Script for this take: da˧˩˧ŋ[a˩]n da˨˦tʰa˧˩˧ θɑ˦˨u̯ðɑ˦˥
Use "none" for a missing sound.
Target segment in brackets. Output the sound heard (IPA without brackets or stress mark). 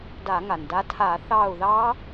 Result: a˩